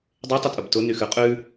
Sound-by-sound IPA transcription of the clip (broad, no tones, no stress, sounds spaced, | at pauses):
dˤ e tˤ ʊ tʼ ʊ b t ʊ n y x ʉ qʼ ʉ